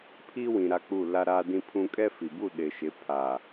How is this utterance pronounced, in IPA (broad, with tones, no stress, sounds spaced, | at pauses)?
pʰ i˦ w ĩ˨ ɾ a˦ k͡p u˦˨ l a˦ ɾ a˦ d ĩ˦ pʰ ũ˦ kʼ ɛ˦ f i˨ b u˦˨ ɗ ɪ˨ ʃ ɪ˨˦ pʰ a˨